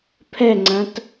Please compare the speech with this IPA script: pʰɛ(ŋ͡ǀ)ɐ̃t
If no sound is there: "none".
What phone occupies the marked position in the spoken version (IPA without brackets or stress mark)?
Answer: ŋ͡ǀ